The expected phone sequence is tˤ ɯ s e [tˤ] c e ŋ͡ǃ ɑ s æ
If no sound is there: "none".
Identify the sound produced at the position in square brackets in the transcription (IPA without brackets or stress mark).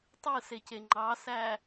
none